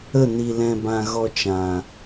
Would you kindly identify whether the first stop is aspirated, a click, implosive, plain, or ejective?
plain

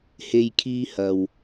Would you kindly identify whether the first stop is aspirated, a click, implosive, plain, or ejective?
aspirated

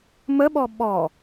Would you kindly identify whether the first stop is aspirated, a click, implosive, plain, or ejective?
implosive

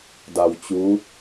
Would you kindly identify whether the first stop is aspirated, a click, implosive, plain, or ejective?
plain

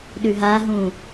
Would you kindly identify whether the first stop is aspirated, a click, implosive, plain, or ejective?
implosive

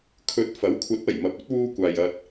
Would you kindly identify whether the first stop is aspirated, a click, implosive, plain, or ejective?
aspirated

